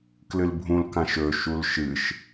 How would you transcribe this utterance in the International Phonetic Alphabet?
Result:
k l ɨ l bʱ ũ l k ã ʃ ɵ ʃ u l ʃ ɨ ʃ

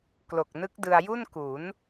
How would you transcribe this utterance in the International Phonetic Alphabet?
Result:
k l o˨˩ k̚ n ɯ˦˥ k̚ d ɯ˧ a̯ j u˥˩ n k u˩˦ n

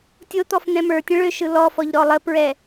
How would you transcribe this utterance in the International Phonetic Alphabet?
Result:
tʲ o t̪ ɔ f n̪ ɛ̃ m ə˞ tʲ ə̃ ɭ ø ʃ ɯ l ɔ f ɔ ʎ ɾ ɔ lˠ ə p ɹ ɛ

